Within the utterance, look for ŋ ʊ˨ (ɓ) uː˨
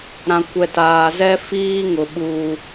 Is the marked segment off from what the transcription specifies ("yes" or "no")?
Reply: no